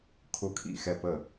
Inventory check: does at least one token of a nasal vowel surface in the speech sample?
no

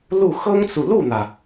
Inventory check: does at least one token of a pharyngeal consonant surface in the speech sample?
no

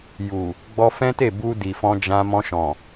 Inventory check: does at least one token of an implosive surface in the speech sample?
no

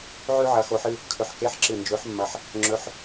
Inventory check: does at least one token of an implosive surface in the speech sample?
no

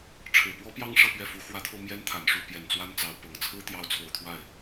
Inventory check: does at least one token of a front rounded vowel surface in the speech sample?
no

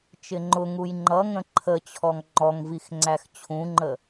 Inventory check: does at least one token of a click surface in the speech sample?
yes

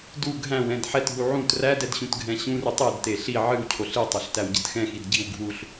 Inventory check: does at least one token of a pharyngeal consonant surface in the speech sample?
yes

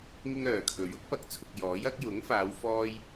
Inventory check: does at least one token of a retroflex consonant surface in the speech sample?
no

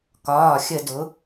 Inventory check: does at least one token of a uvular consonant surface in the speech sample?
no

